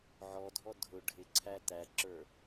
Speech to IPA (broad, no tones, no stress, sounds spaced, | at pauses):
ʕ ɔ dʱ ɔ dʱ ʊ ɖʱ ɪ ǀʰ æ t æ ǁ ə˞